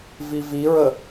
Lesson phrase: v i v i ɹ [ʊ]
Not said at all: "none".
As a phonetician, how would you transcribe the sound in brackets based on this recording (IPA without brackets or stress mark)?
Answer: ə